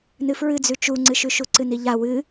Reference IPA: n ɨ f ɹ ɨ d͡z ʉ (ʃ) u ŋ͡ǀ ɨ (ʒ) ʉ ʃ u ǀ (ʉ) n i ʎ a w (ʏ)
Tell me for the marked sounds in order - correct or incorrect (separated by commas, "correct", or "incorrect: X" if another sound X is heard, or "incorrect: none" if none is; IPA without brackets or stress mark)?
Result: incorrect: t͡ʃ, incorrect: ʃ, incorrect: ɨ, incorrect: ɨ